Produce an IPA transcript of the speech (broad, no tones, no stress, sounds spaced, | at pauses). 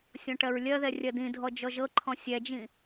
sʲ ɔ̃ ʈ ɜ ɹ lʲ ɜ ð ɛ rʲ ɜ d ĩ dʱ ɔ d͡ʒ ɔ ʒ ɤ ǃʰ ɔ̃ sʲ ɛ d͡ʒ ĩ